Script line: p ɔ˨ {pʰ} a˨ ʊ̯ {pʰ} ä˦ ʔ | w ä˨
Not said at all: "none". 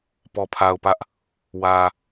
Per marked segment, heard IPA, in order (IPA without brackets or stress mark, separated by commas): pʰ, p